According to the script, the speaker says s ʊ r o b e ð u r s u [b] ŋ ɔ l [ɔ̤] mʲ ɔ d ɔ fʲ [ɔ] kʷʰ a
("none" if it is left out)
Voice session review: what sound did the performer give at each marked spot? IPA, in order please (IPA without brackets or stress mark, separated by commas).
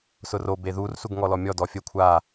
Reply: ɡ, ɔ, ə